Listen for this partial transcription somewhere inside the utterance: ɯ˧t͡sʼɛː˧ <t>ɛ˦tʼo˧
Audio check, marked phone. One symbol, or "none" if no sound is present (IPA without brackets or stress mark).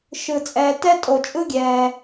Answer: t